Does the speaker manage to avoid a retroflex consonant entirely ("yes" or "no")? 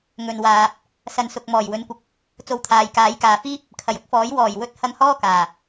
yes